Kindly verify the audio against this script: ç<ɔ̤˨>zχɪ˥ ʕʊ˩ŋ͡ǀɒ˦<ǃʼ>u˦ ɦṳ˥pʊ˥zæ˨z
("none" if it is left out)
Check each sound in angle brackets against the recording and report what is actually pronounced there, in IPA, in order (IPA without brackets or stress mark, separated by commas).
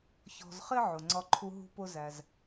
ɔ̤˨, ǃʰ